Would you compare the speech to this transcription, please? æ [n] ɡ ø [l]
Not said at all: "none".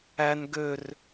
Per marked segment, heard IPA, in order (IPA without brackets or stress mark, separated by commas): n, r